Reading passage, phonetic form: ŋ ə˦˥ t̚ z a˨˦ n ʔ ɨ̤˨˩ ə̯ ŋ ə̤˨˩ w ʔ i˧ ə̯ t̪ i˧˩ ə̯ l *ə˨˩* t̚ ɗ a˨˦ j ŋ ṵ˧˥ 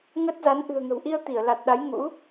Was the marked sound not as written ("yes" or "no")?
yes